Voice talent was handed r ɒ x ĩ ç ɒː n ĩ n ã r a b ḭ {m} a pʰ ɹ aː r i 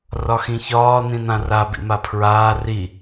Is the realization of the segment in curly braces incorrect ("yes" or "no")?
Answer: no